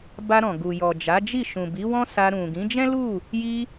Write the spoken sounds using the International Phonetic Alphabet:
b a˧ ɾ ɔ̃˨ ɡ u˨ j ɔ˨ d͡ʒ a˨˦ d͡ʒ i˦˨ ʃ ũ˨ b i˨˦ w ɔ̃˦ s a˧ ɾ ũ˨ ɡ ĩ˨˦ d͡ʒ ɛ̃˦ l u˦˨ | j i˧

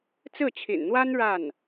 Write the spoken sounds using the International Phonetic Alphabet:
t͡s ɹ̩˥˩ t͡ɕʰ ḭ˨˩ n n̪ w a˥ n ɻ a˥˩ n

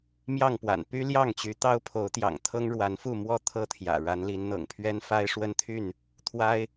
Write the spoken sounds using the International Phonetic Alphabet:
m j ɑ˥˨ ŋ p w a̰˨˩ n p y˦ l j ɑ˥˨ ŋ t͡ɕ y˨˦ t̪ ɑ˦ ʊ̯ pʰ o˨˦ ʊ̯ t̪ j ɑ̰˨˩ ŋ t̪ʰ ɤ˦ ŋ ɻ w a˨˦ n f u˥˨ m w ɔ˥˨ t̪ʰ ɤ˥˨ t̪ʰ j ä̰˨˩ ɻ a˨˦ n l i˨˦ n n̪ ɤ̰˨˩ ŋ pʰ ɥ ɛ˦ n f a˦ ɪ̯ ʂ w ə˦ n t̪ʰ y˥˨ n | t̪ʰ w a˦ ɪ̯

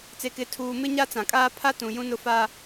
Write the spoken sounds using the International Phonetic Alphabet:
t͡s e˨ k ɪ˨˦ tʰ uː˨ m ɪ˦ ɲ a˦ t͡s ã˨ kʼ aː˦ pʰ a˦ t ũ˨ j ũ˦ n ʊ˦ f a˦

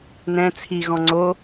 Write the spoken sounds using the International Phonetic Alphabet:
n ɛ̃ t͡sʰ i ɣ ɔ̃ ŋ͡ǀ o

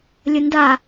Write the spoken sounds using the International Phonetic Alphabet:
lʲ ə n d a

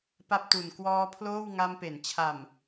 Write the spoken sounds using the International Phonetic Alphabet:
p a˥˩ p̚ t u˨˩ n k w ɔː˦˥ pʰ l oː˥˩ w ŋ a˧ m p e˩˦ n t͡ɕʰ a˨˩ m

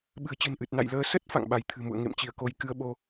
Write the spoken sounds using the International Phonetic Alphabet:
ɓ ɨ̤˨˩ ə̯ t͡ɕ ɨ̤˨˩ n ʔ ɨ˨˩ t̚ n a̰˧˨ j l əː˧ s ə˦˥ t̚ f a̰˧˨ ŋ ɓ a˨˦ j t̪ʰ ɨ̤˨˩ m ṵ˧˨ ə̯ ŋ ḛ˧˨ m t͡ɕ i˧˩ ə̯ k o˧ j k ɨ˧ ə̯ ɓ o˧

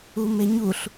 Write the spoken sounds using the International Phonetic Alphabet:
u m e ɲ u ɬ

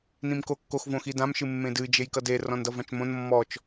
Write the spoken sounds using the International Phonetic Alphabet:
n ĩ m k o kː o x v õ x i d ã m ʃ ɨ mː ẽ d ɨ d͡ʒ e j k ʌ d e r ɔ̃ n d ʌ v ã t͡ʃ m õ n mː ɔ t͡ʃ

